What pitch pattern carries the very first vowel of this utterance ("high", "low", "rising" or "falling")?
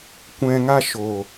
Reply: low